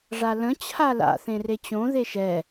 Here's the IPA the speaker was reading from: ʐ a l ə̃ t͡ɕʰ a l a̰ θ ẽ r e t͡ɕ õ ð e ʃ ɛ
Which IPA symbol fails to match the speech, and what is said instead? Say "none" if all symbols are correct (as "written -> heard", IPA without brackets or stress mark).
none